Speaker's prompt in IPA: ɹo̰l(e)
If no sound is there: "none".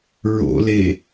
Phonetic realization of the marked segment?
e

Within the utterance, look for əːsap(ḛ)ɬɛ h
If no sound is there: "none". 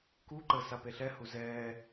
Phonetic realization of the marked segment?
e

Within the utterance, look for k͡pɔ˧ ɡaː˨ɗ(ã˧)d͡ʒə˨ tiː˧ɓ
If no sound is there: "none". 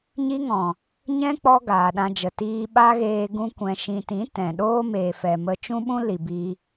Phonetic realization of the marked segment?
ã˧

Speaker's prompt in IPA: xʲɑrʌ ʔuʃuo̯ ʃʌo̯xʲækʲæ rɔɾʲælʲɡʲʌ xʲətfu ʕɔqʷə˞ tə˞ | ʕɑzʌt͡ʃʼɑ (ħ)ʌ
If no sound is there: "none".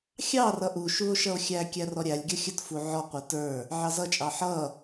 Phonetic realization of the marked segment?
ħ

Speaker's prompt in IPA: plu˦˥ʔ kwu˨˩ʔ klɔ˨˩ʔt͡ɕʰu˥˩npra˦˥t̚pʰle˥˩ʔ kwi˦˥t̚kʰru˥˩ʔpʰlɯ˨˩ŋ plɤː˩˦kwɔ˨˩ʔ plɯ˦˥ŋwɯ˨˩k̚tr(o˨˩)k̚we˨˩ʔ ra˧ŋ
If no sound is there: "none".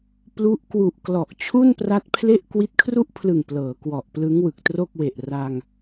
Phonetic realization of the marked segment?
o˥˩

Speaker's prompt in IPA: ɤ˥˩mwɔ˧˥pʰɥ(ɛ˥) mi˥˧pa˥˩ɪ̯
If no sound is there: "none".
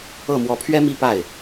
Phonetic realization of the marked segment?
ɛ˥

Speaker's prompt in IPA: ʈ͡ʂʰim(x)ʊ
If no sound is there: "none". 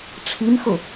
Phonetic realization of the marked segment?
x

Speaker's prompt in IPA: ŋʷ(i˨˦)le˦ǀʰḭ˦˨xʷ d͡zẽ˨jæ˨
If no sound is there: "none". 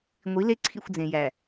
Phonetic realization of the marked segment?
i˨˦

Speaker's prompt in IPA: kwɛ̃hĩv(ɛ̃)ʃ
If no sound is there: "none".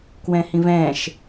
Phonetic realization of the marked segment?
ɛ̃ː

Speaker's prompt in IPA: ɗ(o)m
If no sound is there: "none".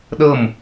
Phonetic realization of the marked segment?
ɤ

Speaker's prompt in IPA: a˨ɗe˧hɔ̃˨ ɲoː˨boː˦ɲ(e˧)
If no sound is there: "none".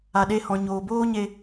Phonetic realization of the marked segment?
e˧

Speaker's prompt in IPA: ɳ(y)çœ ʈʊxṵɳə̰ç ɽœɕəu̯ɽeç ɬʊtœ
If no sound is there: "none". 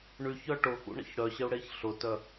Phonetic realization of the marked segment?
y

